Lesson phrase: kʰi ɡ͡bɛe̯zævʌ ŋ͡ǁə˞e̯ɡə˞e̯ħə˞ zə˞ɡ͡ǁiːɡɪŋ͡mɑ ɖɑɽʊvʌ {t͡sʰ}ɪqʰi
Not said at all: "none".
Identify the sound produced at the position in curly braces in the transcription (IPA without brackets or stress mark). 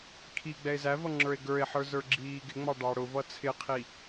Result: t͡sʰ